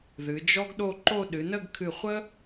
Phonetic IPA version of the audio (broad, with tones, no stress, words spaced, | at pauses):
ðɨ˩˧d͡ʒɔ˥ɡɗo˥˧ǃo˥˧ ɗɨ˩˧nə˥˧ɡkʰɨ˧˩χʷə˥